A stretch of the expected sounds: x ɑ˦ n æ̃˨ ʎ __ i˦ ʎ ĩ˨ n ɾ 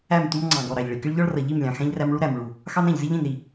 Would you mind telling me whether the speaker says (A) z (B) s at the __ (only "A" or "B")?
A